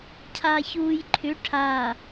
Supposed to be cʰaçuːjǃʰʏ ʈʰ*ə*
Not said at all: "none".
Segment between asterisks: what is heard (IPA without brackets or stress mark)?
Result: a